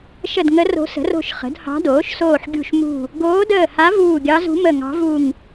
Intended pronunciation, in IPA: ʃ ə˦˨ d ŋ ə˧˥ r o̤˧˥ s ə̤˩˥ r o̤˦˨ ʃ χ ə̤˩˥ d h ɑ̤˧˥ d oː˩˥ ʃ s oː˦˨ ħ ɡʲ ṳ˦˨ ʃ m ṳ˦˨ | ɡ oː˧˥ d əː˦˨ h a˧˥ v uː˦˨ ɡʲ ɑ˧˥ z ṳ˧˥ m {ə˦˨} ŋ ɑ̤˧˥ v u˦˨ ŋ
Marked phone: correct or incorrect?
correct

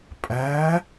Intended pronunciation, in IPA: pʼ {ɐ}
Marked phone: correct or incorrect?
incorrect: æ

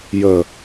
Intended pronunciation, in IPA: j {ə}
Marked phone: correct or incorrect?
correct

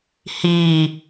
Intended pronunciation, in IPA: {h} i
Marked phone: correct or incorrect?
correct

